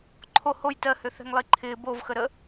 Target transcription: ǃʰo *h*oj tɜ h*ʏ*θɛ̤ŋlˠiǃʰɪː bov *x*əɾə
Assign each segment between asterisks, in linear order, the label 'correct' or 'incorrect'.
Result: correct, correct, correct

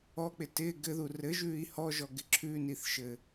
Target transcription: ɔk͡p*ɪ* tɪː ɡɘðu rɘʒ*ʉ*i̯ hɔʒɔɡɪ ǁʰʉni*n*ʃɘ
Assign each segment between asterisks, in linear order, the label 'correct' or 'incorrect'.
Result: correct, incorrect, incorrect

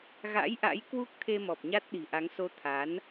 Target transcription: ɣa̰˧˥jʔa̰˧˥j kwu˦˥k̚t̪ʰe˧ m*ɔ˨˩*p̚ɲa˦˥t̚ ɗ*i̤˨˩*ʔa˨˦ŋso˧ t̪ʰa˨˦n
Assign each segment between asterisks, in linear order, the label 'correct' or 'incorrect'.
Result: correct, correct

